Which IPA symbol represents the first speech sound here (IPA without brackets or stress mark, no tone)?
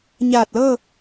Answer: ɲ